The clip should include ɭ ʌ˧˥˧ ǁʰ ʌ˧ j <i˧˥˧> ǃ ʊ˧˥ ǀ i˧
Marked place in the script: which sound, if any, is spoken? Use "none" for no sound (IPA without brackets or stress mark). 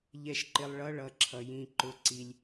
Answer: ĩ˧˥˧